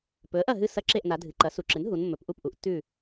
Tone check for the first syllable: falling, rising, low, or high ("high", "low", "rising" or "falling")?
rising